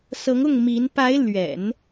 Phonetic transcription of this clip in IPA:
s ɤ˧˥ ŋ ʊ˥˩ ŋ m i˧˥ n p a˧˥ ɪ̯ l ɥ ɛ̰˨˩˦ n

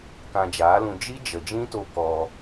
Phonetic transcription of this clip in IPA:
k ã˧ d͡ʒ aː˨˦ l ũ˧ d͡ʒ i˦ d͡ʒ ə˨ d͡ʒ ĩ˦ t o˧ k ɔ˧

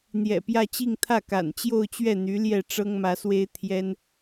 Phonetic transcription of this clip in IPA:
n̪ j ɛ̰˨˩ p j ä˥˧ t͡ɕ i˥˧ ŋ t̪ʰ ä˥˩ k a̰˨˩ n t͡ɕ j o˥˧ ʊ̯ t͡ɕ ɥ ɛ˥˩ n̪ y˧˥ l j ɛ˥˩ ʈ͡ʂ ɤ˥ ŋ m ä˧˥ s w e˥ ɪ̯ t̪ʰ j ɛ˥ n

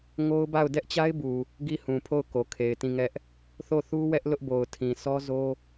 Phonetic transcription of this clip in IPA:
ŋ o˦ ʊ̯ b a˦˨ ʊ̯ d ɛ˦ ʔ t͡ɕ a˦ ɪ̯ b u˨ | ɡ i˦˨ h ũ˨ pʰ o˦˨ ʊ̯ k o˨ kʰ e˨ ɪ̯ t ĩ˦˨ ŋ ɛ˦ ʔ | θ o˦˨ θ u˦ w ɛ˦ ʔ l ʊ˦ ʔ b o˨ ʊ̯ tʰ ĩ˨ s ɔ˦ z o˦

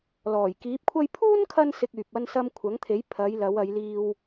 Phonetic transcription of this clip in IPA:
l ɔː˨˩ j k iː˨˥ p̚ kʷʰ ɐ˥ j pʰ uː˥ n kʰ ɐ˧ n s ɪ˨ k̚ yː˨ p̚ ɐ˥ n s ɐ˥ m kʷʰ ɐ˨˥ ŋ t̪ʰ e˨˥ j pʰ ɐ˨˧ j l ɐ˨˧ w ɐ˨˧ j l iː˧ w

